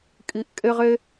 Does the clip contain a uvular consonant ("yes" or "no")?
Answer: yes